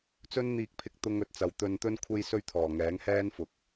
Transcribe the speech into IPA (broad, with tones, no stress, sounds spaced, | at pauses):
t͡s ɵ˥ n n̪ iː˧ k̚ pʰ ɪ˧ k̚ t̪ ʊ˥ ŋ ɵ˨˥ t̚ t͡s ɐ˧ w t̪ ɵ˧ n t̪ ɵ˥ n kʷʰ e˥ j s ɵ˥ ɥ t̪ʰ ɔː˨˩ ŋ ɛː˨˥ ŋ h ɛː˥ n f ʊ˨˥ k̚